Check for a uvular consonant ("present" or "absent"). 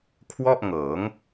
absent